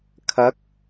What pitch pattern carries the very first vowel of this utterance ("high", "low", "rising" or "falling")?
rising